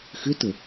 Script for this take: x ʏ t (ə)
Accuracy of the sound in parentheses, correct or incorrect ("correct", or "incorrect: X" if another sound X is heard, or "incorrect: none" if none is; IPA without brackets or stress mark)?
correct